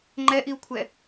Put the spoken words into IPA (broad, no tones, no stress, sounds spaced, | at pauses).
ŋ͡ǃ ɛ ʔ i u̯ kʷʰ ɛ